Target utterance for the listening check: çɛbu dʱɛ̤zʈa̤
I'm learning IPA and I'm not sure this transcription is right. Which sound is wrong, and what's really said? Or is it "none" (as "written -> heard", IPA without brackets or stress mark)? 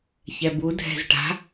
none